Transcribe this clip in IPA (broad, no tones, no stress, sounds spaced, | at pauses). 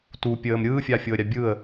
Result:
t u pʲ əː m ɾʲ ɯː fʲ a fʲ o ə̯ ɾʲ a bʲ ɯ ə̯